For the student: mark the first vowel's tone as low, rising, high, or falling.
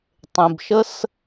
low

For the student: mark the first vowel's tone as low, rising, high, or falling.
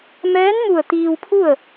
rising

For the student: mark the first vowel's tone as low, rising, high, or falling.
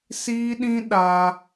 high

